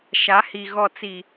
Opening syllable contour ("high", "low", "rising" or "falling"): rising